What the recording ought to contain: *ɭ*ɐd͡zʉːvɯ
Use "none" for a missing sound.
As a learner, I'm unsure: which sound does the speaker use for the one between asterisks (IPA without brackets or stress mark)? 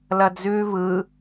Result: l